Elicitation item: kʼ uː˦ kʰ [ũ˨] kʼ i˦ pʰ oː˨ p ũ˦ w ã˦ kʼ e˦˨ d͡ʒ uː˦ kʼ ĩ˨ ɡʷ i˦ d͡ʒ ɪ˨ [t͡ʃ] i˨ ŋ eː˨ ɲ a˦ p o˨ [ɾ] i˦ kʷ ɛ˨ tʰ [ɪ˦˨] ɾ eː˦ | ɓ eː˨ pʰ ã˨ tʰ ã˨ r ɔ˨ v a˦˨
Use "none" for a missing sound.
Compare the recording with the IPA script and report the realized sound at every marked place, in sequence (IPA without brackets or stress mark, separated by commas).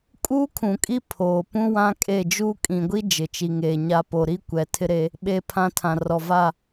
ũ˨, t͡ʃ, ɾ, ɪ˦